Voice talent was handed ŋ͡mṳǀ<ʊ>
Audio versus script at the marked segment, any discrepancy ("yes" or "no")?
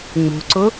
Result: no